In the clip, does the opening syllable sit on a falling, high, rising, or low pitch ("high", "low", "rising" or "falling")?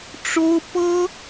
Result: high